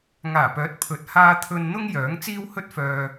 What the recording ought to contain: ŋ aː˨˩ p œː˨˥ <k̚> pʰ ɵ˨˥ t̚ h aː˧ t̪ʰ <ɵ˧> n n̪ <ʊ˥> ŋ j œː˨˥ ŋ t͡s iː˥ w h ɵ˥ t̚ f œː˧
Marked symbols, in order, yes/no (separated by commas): no, yes, yes